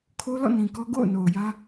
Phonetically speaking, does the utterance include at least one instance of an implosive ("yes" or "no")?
no